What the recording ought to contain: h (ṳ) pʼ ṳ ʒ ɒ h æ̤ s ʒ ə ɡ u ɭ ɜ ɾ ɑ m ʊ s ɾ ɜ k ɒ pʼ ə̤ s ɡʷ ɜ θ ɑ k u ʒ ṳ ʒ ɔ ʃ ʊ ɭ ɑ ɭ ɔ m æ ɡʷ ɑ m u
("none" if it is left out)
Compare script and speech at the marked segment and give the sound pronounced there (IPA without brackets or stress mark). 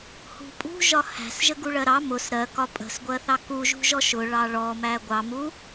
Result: ṳ